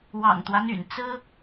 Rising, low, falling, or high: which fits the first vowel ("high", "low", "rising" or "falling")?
low